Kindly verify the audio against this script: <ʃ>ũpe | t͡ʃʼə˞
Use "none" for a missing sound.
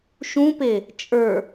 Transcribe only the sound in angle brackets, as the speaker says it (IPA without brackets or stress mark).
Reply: ʃ